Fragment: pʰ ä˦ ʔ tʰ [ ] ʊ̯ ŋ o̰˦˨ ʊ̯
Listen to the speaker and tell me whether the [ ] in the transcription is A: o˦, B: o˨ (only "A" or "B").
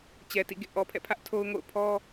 A